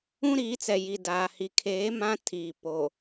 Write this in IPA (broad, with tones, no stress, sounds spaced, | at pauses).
ũ˦ ɾ iː˨˦ t͡s ɛ˨ j i˨ d aː˨ h i˨ kʰ eː˨˦ m ã˦ tʰ iː˨ p o˨